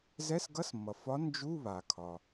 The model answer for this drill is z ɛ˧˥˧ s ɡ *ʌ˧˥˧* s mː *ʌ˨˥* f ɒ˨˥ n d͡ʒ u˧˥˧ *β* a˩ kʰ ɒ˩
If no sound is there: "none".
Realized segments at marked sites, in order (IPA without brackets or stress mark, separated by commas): ʌ˧˥˧, ʌ˩, β